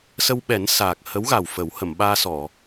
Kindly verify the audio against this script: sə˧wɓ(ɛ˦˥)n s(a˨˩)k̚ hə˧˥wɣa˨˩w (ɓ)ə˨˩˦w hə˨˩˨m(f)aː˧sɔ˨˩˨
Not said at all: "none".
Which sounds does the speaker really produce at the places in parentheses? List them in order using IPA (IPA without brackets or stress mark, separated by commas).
ɛ˨˩˦, aː˨˩, f, ɓ